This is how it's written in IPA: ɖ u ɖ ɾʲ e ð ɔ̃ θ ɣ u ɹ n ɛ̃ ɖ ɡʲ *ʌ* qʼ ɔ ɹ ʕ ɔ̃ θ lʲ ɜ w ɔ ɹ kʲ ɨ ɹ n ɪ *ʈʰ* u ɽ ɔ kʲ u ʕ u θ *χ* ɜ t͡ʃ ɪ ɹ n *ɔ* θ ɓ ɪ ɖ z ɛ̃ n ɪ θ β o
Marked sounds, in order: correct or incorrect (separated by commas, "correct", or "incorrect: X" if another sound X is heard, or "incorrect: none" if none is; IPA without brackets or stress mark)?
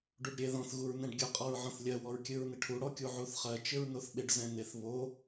correct, correct, correct, incorrect: o